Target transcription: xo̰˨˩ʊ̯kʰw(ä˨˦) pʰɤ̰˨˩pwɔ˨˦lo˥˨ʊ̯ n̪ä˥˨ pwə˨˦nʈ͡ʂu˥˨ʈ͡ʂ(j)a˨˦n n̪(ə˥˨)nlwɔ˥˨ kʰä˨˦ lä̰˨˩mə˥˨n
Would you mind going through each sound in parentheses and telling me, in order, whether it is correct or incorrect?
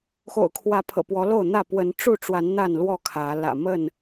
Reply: correct, incorrect, incorrect

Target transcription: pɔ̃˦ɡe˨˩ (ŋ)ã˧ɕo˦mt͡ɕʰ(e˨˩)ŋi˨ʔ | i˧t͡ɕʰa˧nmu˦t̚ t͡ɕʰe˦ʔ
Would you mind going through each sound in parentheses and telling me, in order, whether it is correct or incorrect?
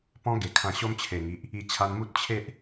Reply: incorrect, correct

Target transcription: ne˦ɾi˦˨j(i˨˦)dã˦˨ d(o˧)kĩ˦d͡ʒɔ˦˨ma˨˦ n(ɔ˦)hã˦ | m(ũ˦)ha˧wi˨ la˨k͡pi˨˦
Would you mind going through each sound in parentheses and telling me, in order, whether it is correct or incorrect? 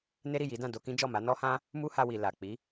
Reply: correct, correct, correct, incorrect

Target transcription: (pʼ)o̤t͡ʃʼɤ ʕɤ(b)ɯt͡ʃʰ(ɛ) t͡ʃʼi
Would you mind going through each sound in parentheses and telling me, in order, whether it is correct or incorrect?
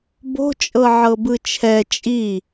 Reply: incorrect, correct, correct

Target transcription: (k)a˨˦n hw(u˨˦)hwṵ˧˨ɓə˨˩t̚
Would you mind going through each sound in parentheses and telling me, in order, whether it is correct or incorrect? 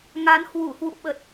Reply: incorrect, incorrect

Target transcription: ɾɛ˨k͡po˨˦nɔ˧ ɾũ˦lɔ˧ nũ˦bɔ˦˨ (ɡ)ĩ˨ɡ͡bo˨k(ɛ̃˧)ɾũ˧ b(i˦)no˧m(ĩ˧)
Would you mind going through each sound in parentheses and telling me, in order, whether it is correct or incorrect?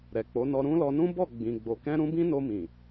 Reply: incorrect, correct, incorrect, incorrect

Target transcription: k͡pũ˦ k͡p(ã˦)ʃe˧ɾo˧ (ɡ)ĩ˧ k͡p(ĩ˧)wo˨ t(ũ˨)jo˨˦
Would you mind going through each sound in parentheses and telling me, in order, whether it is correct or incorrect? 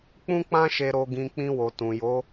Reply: correct, correct, correct, correct

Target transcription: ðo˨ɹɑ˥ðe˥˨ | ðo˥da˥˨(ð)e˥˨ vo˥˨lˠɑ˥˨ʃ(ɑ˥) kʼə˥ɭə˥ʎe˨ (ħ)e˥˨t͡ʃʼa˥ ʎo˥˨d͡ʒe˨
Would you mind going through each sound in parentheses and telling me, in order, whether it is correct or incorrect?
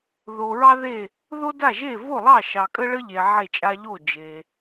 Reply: incorrect, incorrect, incorrect

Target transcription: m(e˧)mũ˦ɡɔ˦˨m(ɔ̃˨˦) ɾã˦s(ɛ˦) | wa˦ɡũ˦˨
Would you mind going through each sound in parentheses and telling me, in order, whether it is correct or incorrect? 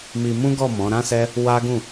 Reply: incorrect, correct, correct

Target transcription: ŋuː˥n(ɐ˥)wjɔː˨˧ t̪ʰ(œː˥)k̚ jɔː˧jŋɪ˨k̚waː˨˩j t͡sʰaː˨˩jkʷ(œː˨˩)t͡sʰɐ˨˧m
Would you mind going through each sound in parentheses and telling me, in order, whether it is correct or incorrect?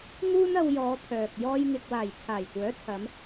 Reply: incorrect, incorrect, incorrect

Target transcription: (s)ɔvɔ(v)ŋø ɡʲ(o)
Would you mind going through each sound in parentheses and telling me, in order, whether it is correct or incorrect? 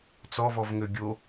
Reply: incorrect, correct, correct

